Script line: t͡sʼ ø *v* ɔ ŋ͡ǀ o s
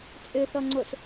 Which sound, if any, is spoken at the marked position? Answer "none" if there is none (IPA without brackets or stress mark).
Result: θ